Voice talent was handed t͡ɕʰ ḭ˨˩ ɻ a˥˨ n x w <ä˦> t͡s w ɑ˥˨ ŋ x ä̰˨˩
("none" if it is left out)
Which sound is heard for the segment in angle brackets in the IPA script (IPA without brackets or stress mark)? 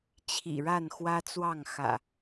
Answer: ä˦